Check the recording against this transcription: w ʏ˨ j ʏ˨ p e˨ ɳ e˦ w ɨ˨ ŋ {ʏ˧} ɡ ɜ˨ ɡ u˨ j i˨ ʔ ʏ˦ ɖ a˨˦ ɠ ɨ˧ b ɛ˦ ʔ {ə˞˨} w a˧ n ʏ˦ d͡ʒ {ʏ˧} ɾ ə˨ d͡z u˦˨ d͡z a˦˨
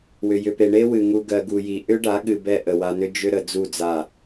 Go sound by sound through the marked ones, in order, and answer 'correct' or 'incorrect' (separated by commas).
incorrect, incorrect, incorrect